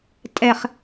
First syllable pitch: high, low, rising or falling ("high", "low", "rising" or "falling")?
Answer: low